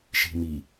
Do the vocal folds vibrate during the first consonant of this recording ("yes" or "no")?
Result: no